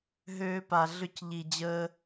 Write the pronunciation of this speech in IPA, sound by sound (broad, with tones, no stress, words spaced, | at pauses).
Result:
ɦøː˧pa˨ ɮʏ˦˨c ʎi˨ d͡ʑəː˧